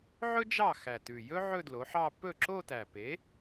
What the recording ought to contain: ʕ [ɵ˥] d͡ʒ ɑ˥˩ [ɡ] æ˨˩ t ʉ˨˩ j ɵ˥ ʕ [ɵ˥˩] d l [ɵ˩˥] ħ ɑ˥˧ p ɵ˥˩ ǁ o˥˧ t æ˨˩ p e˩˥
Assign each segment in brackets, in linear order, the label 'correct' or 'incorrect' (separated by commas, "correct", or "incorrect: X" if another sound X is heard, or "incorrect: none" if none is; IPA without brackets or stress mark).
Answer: correct, incorrect: x, incorrect: ɵ˥˧, incorrect: o˩˥